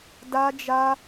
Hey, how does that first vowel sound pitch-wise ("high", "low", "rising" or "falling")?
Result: high